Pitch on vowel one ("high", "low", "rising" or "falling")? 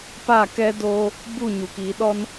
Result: falling